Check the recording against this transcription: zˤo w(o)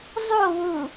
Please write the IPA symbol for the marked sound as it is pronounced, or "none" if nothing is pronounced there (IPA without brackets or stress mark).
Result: u